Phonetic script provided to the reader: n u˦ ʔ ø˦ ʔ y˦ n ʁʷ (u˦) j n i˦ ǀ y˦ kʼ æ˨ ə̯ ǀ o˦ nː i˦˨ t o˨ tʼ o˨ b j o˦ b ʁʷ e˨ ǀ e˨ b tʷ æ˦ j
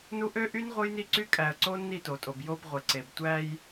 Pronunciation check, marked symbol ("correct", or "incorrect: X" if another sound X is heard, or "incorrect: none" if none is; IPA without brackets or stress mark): incorrect: ɯ˦